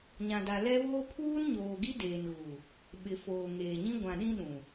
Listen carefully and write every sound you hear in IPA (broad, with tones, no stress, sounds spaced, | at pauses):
ɲ ã˨ d a˨ l ɛ˦ β oː˦ pʰ uː˦ n ɲ oː˨ ɡ i˦ d eː˨ n ɣ u˨ | ɓ ɪ˨ f oː˨ ŋ eː˨ ɲ ĩ˦ ɡʷ ã˨ ɗ ĩ˦ ɗ ũ˨